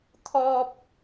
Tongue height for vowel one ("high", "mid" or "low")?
mid